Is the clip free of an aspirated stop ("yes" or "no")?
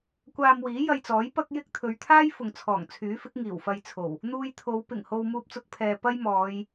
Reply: no